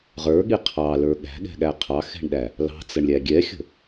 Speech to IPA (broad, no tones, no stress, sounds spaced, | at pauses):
ʁ ə˞ ɠ i qʰ ɑ l ə˞ ɠ æ̤ ɠ ɛ̤ ɠ æ qʰ ɑ x ɛ̤ ɳ ɗ æ | l ɑ̤ t͡s ə ɳ lʲ æ ɡʲ ɛ xʲ ə̤